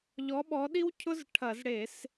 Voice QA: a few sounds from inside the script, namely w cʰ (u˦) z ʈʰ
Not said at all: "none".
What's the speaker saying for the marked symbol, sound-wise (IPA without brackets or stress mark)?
ʊ˦